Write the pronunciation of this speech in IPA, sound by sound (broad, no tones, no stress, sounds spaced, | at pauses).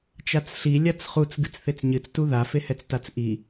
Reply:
t͡ʃ a t͡s ɬ i lʲ a t͡s χ u t͡s ɡ ɨ t͡s θ e t͡s ɲ ɨ t͡s t u ð a f e h ɛ t͡s t a t͡s ʔ i